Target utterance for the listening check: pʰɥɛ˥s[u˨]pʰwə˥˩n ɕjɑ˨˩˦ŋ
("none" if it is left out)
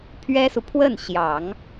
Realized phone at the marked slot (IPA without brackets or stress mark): u˨